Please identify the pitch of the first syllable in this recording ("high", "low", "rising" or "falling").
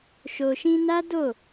low